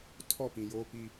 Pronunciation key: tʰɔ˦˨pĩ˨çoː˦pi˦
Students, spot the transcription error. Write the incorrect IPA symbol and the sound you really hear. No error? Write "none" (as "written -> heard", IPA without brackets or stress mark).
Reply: ç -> j